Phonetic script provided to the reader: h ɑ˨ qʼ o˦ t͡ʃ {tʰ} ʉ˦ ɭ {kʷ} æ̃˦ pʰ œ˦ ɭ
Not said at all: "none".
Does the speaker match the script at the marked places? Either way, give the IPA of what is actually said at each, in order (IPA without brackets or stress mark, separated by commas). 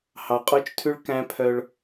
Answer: tʰ, k